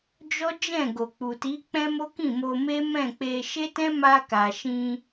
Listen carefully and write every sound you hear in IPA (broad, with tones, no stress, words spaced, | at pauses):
d͡ʒɔ˦d͡ʒɛ̃˦˨ ɡo˨k͡pu˨ti˨˦ k͡pɛ̃˦mo˦ kĩ˦˨mo˧ me˦mɛ̃˦˨k͡pe˧ ʃe˦tɛ̃˦ma˧ka˨ ʃĩ˧